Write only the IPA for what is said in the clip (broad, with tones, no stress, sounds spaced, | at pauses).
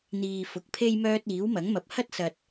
n̪ iː˨ f ʊ˨ k̚ pʰ e˥ j m œː˧ t̚ iː˨˥ w m ɐ˨˥ ŋ m ɐ˨ p̚ h ɐ˥ t̚ s ɐ˨ t̚